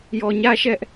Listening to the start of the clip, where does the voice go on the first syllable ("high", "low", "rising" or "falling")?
low